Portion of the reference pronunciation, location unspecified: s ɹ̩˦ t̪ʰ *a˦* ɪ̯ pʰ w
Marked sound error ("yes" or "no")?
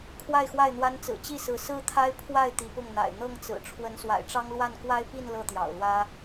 no